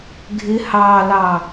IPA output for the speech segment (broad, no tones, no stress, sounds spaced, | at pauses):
ɡʱ ɪ h ɑ l ɑ